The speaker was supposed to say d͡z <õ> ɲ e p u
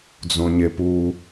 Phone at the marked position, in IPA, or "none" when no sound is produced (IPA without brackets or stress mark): õ